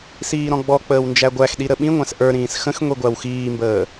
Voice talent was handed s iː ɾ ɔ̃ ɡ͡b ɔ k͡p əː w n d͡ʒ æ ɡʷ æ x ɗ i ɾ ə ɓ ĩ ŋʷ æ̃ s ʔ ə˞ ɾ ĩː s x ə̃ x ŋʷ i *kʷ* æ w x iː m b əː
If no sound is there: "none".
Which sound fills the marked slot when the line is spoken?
ɡʷ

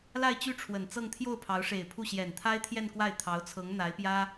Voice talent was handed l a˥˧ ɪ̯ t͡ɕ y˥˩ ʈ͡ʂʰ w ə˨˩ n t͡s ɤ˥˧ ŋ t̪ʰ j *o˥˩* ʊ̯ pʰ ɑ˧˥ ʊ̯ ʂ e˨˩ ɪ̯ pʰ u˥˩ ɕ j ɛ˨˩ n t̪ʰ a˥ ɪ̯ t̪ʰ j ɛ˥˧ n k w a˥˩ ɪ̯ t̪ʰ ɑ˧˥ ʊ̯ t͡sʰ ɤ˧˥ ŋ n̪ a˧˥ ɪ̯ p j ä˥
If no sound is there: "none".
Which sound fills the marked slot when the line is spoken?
o˥˩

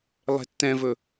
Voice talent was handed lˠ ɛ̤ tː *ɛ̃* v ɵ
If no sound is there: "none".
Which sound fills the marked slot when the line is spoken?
ɛ̃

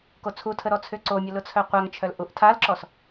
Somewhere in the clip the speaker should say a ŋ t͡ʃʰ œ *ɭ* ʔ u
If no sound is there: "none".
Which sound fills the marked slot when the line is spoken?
l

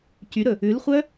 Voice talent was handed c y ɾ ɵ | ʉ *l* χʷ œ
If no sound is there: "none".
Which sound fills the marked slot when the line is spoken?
l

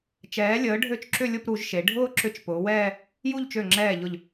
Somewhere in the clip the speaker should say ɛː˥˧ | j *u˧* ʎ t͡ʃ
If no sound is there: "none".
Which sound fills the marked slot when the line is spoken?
u˥˧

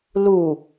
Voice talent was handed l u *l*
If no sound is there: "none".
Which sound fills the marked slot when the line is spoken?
none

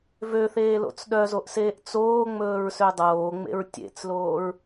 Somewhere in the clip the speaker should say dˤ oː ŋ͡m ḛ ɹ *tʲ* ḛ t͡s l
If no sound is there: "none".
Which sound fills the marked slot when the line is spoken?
tʲ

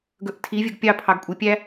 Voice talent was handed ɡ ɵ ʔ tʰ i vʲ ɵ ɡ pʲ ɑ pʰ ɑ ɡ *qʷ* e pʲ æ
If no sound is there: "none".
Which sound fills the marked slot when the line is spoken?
kʷʼ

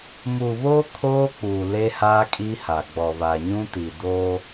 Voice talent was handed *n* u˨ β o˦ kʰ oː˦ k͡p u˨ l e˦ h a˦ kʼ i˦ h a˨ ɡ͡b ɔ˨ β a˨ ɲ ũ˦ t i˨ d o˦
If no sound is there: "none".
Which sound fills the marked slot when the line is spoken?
m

